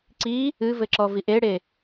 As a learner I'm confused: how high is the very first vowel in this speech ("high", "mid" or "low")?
high